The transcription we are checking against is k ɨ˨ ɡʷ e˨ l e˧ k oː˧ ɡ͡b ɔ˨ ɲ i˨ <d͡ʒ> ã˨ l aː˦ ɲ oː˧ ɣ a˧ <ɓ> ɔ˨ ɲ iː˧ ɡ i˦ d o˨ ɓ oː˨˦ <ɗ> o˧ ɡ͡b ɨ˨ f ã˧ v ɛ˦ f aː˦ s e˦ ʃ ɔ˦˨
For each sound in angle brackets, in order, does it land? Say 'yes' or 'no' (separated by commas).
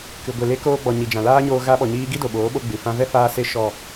yes, yes, no